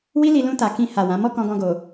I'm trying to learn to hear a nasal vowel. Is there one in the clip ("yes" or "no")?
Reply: yes